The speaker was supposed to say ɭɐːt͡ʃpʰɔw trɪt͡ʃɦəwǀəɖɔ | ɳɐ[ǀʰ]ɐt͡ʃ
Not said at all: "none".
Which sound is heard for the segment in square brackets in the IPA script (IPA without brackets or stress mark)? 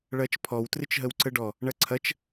ǀʰ